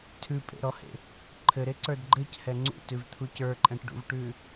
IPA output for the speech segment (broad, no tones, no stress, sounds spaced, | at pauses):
tʰ ʉ pʼ ḛ ɾ ɔ h ḛ | ǃʰ ɘ ɾ e ǀ ə˞ d ɡ͡ǃ ɘ c h ɛ ŋ͡ǀ ṵ t ʉ v t̪ʰ u c ə˞ ǃʼ ɛ̃ ʈ ɖ ṵ v ʈ ʉ